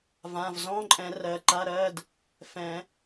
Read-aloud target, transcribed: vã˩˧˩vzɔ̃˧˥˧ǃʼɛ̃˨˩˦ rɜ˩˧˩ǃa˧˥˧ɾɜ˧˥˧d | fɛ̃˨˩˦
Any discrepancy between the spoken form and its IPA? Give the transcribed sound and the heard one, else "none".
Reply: none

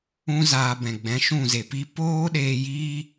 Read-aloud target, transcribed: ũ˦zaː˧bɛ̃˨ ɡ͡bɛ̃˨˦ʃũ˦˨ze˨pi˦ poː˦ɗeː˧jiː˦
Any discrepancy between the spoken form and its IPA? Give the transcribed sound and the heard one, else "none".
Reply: none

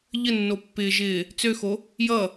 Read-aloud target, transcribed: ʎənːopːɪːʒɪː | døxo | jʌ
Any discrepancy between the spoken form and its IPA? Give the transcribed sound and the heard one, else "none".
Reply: d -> t͡s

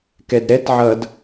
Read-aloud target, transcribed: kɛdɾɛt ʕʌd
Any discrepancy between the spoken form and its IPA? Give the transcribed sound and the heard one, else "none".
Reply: none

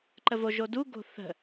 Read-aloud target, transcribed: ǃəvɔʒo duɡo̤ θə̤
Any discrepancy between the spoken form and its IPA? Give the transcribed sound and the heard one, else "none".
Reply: ɔ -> o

